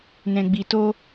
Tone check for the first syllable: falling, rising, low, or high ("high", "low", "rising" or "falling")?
low